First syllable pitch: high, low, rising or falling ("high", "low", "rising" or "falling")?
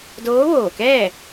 rising